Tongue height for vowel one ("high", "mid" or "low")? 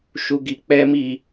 high